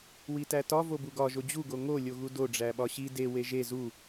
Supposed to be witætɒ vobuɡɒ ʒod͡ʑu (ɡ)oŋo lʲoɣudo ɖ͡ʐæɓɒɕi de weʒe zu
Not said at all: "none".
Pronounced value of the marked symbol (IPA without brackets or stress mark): ɡ